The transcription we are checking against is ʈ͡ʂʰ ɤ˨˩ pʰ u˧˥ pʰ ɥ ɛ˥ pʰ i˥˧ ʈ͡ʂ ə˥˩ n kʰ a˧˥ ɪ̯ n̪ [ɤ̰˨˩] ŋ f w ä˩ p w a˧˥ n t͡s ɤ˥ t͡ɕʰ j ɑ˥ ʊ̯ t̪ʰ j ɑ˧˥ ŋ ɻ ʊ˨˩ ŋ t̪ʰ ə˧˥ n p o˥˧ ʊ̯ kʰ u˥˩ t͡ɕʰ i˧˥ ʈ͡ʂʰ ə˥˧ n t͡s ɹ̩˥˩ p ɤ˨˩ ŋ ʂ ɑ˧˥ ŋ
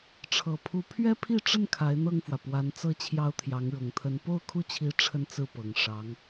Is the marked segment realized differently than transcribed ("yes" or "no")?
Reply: yes